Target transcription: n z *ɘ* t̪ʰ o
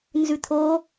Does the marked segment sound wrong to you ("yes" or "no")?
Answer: yes